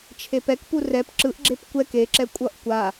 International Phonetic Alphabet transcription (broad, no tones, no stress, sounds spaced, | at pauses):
t͡ʃʰ e p ɛ k p u r ɛ p ǁ ɯ ʔ ɡ͡ǁ e p kʷ ɛ k e ǁ ɛ kʷʼ ʌ ʔ kʷ a